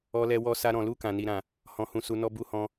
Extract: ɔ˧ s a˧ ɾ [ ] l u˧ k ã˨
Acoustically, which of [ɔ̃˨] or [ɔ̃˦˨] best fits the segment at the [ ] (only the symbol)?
ɔ̃˨